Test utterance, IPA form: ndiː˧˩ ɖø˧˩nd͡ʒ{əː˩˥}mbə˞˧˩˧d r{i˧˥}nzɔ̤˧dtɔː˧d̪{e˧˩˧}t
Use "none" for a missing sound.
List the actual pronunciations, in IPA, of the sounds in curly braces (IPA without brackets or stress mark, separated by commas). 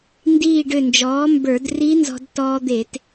ɔː˩˥, i˧˥, e˧˩˧